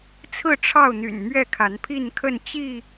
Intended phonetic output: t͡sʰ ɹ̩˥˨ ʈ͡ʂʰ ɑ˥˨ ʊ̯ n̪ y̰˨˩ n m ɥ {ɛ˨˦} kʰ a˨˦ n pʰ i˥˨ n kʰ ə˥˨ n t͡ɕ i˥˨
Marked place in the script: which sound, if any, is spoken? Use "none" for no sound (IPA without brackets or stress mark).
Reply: ɛ˥˨